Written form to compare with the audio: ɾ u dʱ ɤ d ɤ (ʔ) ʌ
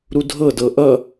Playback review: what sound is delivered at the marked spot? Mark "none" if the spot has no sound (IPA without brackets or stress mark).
ʔ